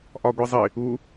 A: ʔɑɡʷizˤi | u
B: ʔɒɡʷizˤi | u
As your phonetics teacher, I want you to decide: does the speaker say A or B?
B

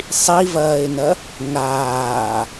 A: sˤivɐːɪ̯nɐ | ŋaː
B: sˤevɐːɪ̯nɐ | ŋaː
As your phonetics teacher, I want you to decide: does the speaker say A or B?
A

